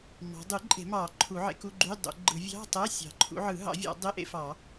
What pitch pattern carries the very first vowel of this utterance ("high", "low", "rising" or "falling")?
rising